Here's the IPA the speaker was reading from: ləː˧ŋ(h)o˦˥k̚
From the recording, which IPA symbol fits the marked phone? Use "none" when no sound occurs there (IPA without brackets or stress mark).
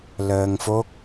f